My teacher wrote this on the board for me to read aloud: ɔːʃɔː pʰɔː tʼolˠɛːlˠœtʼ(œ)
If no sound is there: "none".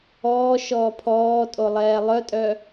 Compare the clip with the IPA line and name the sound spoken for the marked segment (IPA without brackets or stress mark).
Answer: œ